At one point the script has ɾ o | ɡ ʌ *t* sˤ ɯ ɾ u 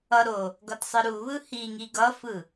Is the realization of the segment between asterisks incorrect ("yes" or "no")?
no